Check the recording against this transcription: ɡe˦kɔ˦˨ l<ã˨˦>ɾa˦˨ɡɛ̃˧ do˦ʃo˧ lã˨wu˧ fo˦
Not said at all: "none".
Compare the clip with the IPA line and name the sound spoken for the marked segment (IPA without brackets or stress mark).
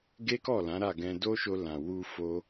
ã˨˦